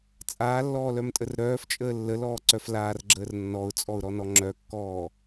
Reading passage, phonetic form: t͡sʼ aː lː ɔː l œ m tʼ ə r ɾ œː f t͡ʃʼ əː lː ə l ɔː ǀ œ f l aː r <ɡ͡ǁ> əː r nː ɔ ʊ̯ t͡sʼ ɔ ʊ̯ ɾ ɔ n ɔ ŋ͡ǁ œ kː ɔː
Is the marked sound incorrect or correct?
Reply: correct